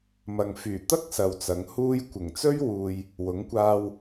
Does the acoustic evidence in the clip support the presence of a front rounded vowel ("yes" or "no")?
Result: yes